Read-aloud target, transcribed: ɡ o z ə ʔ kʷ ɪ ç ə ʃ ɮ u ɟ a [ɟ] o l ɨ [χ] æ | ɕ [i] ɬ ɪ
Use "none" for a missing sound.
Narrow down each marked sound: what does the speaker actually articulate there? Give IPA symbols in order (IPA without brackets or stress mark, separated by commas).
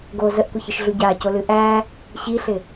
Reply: c, ʔ, i